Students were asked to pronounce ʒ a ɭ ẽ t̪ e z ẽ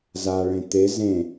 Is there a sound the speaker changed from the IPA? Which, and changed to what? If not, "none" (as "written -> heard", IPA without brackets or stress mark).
ʒ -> z